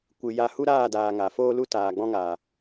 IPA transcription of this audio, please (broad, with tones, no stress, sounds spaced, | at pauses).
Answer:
kʷ ɨ˨ j a˦˨ h u˦ ɾ aː˦˨ d aː˨ ŋ a˨ f oː˦ l u˦ t aː˨ ɡ͡b ɔ̃˦ ŋ aː˨